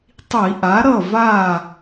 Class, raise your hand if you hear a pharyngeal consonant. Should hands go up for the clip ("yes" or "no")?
no